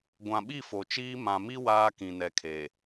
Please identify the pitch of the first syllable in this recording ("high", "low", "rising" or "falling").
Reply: low